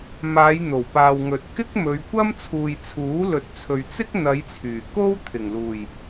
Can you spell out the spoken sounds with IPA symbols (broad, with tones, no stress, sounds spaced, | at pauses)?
m aː˨˧ j n̪ o˨˩ w p aː˨ w ŋ ɵ˨ t̚ k ɪ˥ k̚ m ɵ˨˧ ɥ kʷ ɐ˥ m t͡sʰ uː˨ j t͡sʰ uː˨˥ l ɵ˨ t̚ t͡sʰ ɵ˨ ɥ t͡s ɪ˥ k̚ n̪ ɐ˨˧ j t͡sʰ yː˨˩ k o˥ w t̪ʰ ɪ˨˩ ŋ l uː˨˩ j